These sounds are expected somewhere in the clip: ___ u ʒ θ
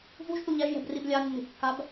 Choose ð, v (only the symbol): v